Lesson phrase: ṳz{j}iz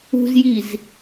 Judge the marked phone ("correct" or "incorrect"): correct